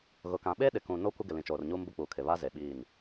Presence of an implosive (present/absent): present